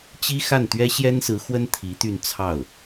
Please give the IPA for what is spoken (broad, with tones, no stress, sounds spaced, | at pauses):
t͡ɕ i˥ x a˥˩ n t̪ ɥ ɛ˥ ɕ j ɛ˥ n s ɹ̩˧˥ x w ə˥ n t̪ʰ i˧˥ t̪ y˥˧ n t͡sʰ ɑ˥˩ ʊ̯